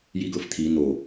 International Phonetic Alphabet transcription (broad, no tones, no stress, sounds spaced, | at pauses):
j i ɡ ɤ f t̪ʰ i n̪ o